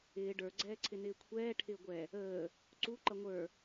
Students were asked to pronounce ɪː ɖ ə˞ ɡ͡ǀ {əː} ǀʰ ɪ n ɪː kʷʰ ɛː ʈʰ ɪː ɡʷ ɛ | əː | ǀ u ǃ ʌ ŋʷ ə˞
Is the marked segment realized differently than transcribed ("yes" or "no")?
yes